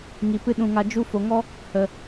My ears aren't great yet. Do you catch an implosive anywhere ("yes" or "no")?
yes